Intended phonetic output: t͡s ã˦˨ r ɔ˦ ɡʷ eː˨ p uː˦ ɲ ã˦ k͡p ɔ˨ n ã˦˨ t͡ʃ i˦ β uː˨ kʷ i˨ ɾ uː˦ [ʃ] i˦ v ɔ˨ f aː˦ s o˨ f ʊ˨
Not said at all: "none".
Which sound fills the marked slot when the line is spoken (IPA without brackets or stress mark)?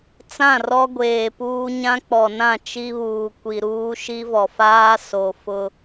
ʃ